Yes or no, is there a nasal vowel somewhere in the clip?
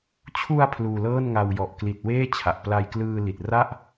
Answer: no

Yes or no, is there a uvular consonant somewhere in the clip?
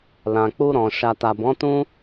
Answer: no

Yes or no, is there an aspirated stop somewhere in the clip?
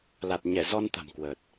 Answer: no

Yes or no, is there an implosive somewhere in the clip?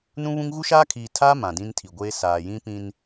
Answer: no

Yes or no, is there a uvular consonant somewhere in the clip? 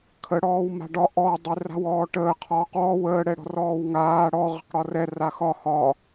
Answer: yes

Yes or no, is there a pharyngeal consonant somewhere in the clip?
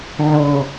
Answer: yes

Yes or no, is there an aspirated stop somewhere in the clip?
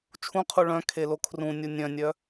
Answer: yes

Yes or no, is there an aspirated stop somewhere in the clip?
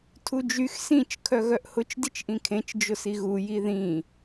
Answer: yes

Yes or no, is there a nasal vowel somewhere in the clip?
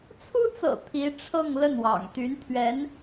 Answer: no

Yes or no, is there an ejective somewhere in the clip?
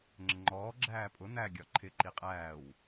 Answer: yes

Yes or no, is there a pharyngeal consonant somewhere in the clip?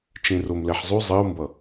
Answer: yes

